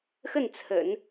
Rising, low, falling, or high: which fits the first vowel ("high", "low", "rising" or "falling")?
falling